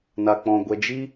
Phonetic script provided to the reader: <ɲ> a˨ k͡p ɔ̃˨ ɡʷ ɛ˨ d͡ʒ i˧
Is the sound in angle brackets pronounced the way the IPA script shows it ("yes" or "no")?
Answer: no